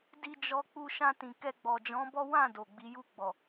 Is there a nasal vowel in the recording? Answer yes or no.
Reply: yes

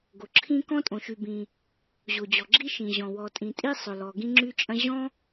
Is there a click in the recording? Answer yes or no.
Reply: yes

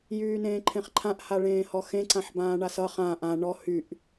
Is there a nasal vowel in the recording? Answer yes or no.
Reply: yes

